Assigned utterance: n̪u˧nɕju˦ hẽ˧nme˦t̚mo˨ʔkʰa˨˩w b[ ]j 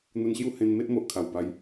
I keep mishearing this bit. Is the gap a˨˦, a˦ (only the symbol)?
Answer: a˨˦